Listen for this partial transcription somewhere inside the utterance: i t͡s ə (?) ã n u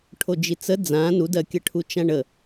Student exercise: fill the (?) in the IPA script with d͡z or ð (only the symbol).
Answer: d͡z